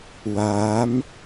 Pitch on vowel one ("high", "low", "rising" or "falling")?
rising